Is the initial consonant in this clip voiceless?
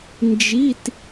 no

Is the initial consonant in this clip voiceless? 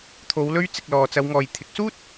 yes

